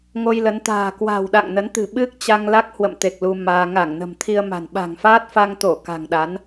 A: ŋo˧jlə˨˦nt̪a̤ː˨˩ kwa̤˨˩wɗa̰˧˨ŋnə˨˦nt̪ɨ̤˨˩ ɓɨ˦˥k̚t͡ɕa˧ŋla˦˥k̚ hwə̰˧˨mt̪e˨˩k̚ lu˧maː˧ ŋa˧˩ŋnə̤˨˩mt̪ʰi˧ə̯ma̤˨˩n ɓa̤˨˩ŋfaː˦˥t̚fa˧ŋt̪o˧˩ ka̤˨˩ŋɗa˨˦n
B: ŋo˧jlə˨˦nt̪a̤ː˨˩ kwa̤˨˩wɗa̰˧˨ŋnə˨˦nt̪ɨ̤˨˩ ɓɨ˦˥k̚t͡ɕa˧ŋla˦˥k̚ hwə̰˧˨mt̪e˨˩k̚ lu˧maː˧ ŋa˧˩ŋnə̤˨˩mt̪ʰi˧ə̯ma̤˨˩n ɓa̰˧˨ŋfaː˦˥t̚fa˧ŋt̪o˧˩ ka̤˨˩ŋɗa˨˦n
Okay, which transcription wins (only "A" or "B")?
A